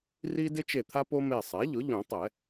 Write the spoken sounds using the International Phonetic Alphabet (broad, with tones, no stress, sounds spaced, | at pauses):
r i˦ d ɪ˦ t͡ʃ e˧˩ t̪ʰ a˦ p o˦ m e˧˩ sˤ ɛ˩˥ ʎ ʊ˩˥ ʎ ũ˨˩˦ tˤ ɛ˨˩˦